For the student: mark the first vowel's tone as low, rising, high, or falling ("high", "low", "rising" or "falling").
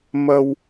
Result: low